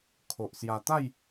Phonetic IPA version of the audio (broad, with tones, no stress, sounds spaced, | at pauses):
kʰ o˨ ʔ s j a˧ t̪ a˥˧ j